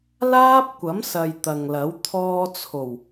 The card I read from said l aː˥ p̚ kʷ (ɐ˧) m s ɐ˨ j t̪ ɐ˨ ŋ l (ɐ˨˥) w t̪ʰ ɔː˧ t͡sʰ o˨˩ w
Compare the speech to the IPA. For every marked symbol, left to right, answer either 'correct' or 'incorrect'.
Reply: incorrect: ɐ˨˥, correct

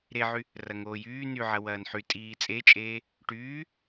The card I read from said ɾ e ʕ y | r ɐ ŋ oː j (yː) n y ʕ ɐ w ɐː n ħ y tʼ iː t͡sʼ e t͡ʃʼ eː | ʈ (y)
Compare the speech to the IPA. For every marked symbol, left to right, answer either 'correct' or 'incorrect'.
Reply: correct, incorrect: yː

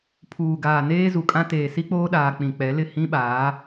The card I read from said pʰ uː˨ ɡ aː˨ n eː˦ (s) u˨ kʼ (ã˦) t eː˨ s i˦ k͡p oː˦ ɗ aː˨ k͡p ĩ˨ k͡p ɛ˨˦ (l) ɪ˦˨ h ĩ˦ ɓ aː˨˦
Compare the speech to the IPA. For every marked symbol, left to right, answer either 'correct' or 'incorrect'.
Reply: incorrect: z, correct, correct

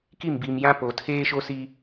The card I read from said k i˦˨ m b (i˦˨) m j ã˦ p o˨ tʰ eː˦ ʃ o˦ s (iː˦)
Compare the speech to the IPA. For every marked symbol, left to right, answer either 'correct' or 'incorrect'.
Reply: incorrect: i˨, incorrect: i˦

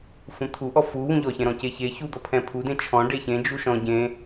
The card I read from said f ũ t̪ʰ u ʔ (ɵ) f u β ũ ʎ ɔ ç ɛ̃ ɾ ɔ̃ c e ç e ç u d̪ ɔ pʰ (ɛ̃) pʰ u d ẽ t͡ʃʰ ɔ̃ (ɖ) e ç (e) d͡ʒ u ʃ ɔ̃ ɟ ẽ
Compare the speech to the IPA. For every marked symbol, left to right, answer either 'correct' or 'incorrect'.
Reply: incorrect: ɔ, correct, correct, incorrect: ẽ

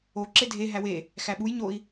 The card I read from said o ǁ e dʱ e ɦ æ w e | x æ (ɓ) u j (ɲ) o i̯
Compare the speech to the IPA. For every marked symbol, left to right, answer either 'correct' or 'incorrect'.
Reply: correct, correct

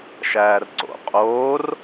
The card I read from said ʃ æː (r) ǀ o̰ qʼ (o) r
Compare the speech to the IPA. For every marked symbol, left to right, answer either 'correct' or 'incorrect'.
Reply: correct, incorrect: oː

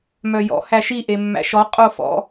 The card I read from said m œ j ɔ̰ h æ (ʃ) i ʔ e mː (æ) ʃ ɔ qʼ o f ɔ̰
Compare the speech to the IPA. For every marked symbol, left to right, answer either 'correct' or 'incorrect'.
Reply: correct, incorrect: æ̰

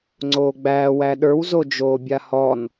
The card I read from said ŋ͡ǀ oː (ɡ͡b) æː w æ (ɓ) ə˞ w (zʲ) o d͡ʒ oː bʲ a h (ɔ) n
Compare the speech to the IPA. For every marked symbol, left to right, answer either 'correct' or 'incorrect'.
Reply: correct, incorrect: ɗ, incorrect: z, correct

